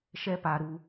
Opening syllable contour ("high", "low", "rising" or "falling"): high